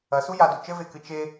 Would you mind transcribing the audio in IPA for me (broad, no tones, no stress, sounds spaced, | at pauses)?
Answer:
ɐ s u j a d u t͡ʃ ɘ v e k ɨ t͡ʃ e